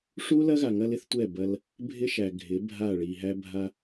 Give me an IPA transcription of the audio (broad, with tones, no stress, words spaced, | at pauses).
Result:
ʂu˦lɐ˦ɣa˨ ŋɐ˦lɪ˦θtʷɛ˦˨ bɐ˦l | bʱɪ˦ʃæ˨ ɡʱɪ˨˦ bʱa˦˨ɭi˨ ɦæ˦bʱa˦